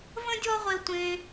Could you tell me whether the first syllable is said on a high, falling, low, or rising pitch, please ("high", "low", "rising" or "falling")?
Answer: high